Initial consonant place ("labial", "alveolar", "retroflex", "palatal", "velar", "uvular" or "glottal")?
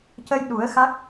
palatal